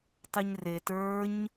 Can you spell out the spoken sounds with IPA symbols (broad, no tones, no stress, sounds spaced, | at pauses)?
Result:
tˤ ɯ ɲ r e t ə˞ ɲ